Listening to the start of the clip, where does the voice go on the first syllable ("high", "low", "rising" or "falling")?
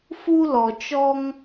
high